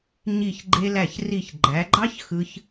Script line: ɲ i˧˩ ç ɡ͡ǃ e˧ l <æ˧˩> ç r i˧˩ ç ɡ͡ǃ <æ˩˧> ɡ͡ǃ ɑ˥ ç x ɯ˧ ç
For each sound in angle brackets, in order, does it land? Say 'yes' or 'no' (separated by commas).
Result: yes, yes